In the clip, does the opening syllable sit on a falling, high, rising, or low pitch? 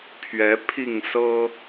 rising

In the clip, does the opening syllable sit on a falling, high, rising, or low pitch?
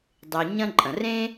low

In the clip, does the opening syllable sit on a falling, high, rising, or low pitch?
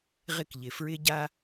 high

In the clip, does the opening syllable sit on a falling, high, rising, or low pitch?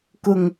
low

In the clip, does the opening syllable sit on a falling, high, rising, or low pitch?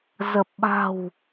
low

